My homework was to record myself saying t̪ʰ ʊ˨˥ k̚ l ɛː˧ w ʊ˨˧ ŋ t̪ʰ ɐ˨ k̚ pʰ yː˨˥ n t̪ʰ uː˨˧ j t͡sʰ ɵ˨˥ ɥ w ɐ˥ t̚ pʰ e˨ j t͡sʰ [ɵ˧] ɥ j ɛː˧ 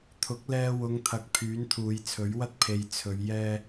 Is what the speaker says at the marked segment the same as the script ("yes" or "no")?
no